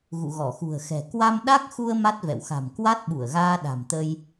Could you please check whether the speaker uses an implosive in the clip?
yes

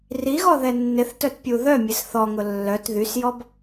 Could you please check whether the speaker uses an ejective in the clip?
no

